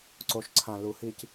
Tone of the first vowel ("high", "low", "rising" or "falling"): low